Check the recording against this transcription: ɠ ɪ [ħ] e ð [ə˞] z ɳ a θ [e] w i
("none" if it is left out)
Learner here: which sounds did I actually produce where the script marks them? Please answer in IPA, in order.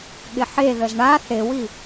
ħ, ə, e

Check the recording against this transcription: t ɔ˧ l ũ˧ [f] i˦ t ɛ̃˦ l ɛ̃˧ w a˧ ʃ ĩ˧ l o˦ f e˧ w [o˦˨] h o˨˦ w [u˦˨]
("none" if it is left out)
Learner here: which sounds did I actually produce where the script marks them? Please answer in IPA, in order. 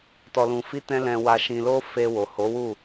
f, o˨, u˦˨

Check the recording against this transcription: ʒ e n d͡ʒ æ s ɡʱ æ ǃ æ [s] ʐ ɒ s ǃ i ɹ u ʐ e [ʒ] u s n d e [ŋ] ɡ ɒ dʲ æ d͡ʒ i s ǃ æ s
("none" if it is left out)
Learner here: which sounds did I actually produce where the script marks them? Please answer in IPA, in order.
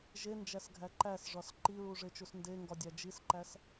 s, t͡ʃ, ŋ

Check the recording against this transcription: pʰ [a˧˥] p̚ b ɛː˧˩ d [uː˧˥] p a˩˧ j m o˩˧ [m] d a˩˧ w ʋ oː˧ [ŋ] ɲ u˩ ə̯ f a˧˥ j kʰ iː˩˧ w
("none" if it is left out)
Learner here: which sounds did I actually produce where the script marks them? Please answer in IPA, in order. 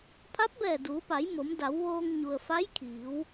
a˧˥, uː˩˧, m, ŋ

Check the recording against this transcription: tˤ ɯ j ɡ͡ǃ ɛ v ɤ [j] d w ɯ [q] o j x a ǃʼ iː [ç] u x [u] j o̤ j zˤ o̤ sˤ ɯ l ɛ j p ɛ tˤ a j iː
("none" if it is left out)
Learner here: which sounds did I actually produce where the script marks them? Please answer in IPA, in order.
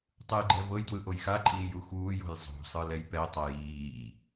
j, ʔ, j, uː

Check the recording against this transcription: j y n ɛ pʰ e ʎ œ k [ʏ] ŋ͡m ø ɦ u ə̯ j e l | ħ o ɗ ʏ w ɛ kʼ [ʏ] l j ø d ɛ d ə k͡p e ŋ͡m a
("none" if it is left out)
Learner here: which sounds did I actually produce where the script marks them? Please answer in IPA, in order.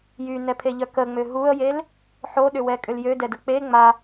ə, ʏ

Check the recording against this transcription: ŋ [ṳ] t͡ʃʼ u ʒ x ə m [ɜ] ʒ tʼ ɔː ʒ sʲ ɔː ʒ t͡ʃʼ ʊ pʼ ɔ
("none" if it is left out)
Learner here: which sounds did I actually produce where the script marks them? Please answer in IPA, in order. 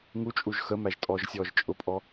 u, æ

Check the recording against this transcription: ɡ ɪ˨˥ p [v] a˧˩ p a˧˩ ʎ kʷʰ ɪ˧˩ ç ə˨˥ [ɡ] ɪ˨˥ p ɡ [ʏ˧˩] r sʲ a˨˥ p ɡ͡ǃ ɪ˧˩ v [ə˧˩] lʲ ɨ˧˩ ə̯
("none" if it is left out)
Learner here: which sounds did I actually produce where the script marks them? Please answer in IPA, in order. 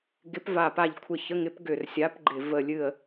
v, ŋ, ʏ˧˩, ə˧˩

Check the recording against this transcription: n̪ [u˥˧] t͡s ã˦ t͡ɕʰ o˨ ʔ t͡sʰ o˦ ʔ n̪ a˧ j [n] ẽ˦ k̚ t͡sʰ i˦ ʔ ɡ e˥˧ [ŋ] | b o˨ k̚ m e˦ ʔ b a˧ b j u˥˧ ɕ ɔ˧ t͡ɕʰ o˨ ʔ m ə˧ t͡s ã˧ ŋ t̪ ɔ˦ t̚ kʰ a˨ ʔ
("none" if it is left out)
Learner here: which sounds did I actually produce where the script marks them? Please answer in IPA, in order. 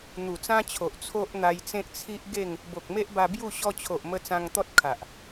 u˨˩, t͡s, ŋ

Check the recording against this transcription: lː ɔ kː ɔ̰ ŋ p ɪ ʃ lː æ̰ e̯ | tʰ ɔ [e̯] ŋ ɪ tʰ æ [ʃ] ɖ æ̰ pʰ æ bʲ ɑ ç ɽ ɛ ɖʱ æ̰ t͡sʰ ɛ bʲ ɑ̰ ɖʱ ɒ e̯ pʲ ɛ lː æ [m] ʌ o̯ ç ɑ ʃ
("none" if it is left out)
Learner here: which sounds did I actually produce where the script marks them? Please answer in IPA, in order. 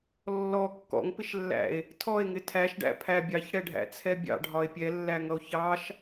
e̯, ʃ, ŋ

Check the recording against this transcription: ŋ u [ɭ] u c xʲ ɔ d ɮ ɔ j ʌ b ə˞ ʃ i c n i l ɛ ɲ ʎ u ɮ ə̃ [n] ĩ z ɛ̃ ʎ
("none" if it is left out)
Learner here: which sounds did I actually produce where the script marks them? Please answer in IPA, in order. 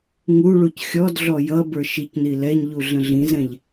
ɭ, ɮ

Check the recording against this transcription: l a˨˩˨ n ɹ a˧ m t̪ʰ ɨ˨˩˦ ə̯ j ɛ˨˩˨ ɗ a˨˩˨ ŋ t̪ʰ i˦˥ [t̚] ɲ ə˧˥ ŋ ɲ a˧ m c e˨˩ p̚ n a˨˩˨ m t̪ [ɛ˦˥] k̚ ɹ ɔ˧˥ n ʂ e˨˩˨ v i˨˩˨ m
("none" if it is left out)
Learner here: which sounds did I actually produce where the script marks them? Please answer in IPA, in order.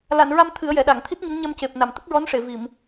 t̚, ə˦˥

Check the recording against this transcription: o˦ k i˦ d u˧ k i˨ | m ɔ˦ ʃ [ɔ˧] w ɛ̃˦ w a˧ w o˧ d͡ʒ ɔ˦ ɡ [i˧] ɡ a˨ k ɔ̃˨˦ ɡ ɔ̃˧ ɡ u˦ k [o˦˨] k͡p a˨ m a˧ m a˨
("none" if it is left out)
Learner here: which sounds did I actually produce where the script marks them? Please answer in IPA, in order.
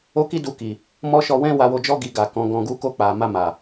ɔ˧, i˧, o˦˨

